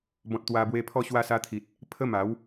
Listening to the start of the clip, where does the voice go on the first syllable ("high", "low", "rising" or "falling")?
low